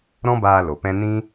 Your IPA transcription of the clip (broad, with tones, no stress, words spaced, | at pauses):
ɾɔ̃˦baː˧ lo˨pɛ̃˦ nĩ˦